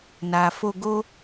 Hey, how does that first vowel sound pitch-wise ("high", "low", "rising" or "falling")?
low